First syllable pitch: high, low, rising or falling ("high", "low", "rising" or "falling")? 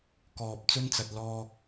low